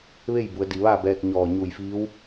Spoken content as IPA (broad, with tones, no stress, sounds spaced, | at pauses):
ʋ e˥˨ j b u˩˧ ə̯ d i˩ ʋ aː˥˨ b ɛː˧ k̚ ɲ ɔː˧˩ ɲ u˧˩ j f iː˧˥ w